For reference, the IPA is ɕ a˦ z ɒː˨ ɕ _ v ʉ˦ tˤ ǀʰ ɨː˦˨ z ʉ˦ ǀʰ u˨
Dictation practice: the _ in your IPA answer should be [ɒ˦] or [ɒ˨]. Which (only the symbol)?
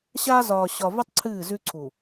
ɒ˨